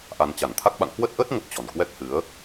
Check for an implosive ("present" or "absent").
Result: present